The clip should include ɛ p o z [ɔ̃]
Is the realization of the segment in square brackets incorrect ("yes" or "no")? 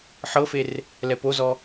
yes